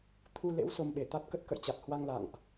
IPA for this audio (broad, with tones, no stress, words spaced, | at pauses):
t̪ʰu˧lḛ˧˥w so˧mɓe˧˩t̪a˦˥t̚kə˦˥t̚ kə̰˧˨jt͡ɕa˨˩t̚hwa˧ŋ la̰˧˨ŋʔ